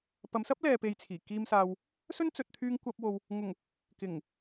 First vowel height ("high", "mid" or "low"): low